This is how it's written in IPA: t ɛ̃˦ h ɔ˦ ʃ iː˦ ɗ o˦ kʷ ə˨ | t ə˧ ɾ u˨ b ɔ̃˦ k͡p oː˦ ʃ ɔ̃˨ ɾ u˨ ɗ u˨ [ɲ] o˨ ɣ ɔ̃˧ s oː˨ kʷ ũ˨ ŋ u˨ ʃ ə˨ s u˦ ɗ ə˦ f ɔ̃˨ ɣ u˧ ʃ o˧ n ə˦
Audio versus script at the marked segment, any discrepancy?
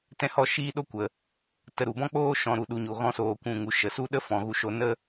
no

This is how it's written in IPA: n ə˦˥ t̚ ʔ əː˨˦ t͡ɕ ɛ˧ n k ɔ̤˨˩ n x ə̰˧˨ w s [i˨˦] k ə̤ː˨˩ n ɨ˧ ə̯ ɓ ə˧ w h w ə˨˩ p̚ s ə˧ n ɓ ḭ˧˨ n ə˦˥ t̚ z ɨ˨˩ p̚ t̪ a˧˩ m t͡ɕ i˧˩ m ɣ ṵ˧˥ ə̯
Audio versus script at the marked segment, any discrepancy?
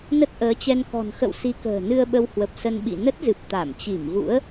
no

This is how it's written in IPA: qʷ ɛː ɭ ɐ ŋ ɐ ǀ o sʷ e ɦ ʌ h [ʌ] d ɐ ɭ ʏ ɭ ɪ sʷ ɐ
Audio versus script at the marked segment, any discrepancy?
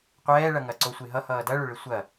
yes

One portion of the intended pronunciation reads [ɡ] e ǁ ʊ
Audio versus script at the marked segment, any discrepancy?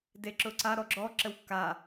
yes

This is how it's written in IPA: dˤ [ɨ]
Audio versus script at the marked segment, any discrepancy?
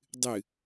no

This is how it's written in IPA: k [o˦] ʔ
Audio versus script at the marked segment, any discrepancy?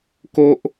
no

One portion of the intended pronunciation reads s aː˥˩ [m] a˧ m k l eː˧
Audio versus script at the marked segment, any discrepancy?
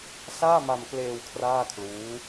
no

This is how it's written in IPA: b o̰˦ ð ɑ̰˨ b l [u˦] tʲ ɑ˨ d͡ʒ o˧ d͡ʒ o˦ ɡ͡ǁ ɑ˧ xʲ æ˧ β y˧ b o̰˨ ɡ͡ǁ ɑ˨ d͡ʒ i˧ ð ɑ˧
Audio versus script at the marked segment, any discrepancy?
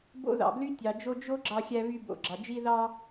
yes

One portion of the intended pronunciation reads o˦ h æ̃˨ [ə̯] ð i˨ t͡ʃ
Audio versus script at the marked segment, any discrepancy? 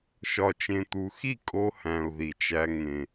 yes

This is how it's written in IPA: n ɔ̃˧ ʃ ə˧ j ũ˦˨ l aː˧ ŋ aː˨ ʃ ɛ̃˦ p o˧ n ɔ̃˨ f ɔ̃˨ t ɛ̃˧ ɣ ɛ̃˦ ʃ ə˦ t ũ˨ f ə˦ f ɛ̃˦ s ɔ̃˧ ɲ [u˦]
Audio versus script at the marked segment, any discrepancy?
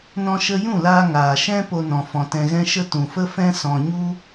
no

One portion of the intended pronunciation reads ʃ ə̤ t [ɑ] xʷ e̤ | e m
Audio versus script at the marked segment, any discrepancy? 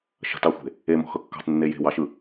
no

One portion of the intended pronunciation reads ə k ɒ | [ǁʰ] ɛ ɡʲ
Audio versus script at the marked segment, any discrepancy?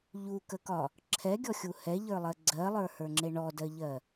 no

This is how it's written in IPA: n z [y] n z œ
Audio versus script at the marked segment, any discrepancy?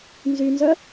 no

